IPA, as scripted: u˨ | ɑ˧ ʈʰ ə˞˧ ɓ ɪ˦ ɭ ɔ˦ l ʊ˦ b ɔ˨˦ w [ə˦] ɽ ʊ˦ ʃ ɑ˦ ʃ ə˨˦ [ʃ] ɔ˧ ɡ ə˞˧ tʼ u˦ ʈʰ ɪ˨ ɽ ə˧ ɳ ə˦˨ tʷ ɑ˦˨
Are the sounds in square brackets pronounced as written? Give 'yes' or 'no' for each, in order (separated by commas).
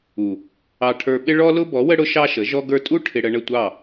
yes, no